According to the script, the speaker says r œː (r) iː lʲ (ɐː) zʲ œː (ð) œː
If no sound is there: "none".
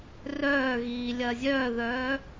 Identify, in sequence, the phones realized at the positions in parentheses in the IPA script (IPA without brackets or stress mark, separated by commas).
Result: ɣ, ɐː, ð